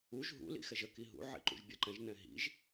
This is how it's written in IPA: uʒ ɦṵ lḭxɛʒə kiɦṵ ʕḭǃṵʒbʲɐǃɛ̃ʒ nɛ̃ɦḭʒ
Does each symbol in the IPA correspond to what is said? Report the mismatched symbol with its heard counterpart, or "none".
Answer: none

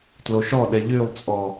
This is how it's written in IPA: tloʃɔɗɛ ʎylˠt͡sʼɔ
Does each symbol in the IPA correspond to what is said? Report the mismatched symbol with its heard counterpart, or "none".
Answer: none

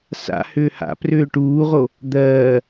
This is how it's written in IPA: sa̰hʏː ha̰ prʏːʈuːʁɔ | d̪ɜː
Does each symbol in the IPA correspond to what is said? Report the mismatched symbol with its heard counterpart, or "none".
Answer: ɔ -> o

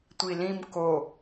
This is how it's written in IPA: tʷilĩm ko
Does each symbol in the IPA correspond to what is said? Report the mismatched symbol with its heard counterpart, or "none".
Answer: none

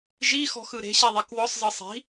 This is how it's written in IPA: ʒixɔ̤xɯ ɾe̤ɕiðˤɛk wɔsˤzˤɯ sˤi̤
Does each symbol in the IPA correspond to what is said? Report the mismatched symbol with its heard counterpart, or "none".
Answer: none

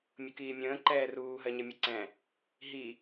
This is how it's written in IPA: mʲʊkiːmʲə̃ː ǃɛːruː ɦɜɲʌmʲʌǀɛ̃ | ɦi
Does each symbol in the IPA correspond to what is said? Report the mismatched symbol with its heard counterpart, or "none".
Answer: none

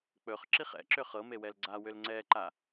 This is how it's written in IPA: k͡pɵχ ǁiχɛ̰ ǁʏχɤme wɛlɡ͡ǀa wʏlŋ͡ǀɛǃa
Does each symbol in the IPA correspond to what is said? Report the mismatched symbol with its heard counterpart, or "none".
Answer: none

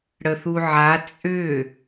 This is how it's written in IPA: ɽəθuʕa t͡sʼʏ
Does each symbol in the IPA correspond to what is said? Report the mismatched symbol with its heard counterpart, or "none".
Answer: none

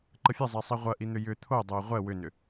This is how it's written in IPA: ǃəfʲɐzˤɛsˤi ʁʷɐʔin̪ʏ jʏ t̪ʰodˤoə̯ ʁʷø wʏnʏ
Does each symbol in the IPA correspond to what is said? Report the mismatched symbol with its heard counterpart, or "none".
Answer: ø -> ɛ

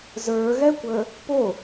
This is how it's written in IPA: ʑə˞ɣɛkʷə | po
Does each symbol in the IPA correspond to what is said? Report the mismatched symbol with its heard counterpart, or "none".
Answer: ʑ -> z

